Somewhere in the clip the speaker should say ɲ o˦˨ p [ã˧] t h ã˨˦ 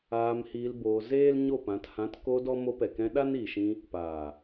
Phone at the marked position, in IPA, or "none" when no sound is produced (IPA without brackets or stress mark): ã˨˦